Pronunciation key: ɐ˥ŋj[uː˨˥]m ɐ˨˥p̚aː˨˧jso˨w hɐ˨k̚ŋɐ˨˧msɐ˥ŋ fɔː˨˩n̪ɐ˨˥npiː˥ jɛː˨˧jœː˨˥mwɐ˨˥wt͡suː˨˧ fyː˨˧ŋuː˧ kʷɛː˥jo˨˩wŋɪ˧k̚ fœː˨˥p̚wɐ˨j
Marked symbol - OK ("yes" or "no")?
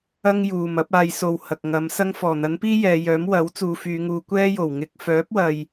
no